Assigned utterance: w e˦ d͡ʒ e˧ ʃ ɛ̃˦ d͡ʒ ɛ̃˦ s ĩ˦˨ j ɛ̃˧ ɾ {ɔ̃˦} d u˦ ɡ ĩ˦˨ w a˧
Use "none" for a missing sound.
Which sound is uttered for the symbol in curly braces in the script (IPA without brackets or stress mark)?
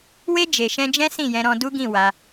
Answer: ɔ̃˧